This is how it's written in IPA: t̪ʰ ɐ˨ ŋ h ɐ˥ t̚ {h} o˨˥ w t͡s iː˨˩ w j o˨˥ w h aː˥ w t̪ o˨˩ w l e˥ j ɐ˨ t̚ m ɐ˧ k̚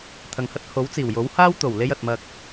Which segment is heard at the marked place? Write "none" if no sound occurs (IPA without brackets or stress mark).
h